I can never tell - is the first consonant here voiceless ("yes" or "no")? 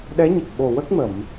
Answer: no